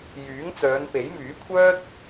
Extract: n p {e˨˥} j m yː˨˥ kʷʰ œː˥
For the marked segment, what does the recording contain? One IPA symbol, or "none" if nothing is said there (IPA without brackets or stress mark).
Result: e˨˥